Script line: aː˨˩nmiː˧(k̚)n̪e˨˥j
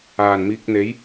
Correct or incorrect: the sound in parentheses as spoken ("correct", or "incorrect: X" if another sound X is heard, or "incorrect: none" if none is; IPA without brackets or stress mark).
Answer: correct